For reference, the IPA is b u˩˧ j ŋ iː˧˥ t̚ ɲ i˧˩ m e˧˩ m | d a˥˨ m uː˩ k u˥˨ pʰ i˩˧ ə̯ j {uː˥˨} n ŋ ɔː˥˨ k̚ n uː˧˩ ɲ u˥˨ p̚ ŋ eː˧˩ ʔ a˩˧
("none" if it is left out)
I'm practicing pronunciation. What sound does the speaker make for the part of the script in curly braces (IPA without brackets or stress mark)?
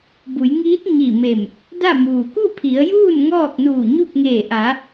uː˥˨